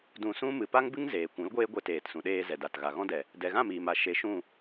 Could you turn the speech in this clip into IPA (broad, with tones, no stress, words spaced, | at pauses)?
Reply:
dũ˧sũ˦ mɨ˨pa˦ŋbɨ˦ŋ zeː˨ kʷũ˨˦lɡʷeː˦ ɡʷe˧teː˨tsũ˨ɗeː˧ zɛ˨da˨t ɣa˨ɣɔ̃˦dɛ˨ | dɛ˨ɣã˦˨ miː˨ma˨ ʃe˧ ʃũ˦˨